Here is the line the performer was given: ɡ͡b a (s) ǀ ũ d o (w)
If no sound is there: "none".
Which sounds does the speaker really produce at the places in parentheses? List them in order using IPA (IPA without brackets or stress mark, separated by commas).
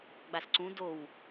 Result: s, w